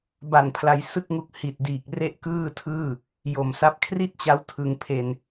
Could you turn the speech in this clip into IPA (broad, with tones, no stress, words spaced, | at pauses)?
ba˨˩npʰla˩˦j sɯ˥˩k̚ŋu˦˥k̚ hi˨˩t̚diː˨˩k̚ re˥˩ʔkɯː˥˩tʰɯː˥˩ | jo˨˩msa˦˥p̚ kʰri˥˩t̚t͡ɕa˦˥w tʰɯ˧ŋpʰe˧n